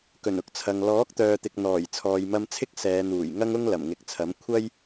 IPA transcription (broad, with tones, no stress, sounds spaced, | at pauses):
k ɵ˨˩ n ʊ˧ k̚ t͡sʰ ɐ˨ ŋ l ɔː˨˥ k̚ t̪ œː˨ t̪ ɪ˨ k̚ n̪ ɔː˨˩ j t͡sʰ ɔː˨ j m ɐ˧ m t͡sʰ ɪ˥ k̚ s ɛː˨˧ n̪ uː˨˩ j ŋ ɐ˥ ŋ ʊ˥ ŋ l ɐ˨˩ m ŋ ɪ˨ k̚ t͡sʰ ɐ˨˥ m kʷʰ ɐ˥ j